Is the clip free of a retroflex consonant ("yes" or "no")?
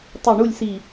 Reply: no